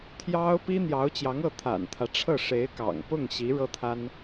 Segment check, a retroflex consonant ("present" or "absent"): present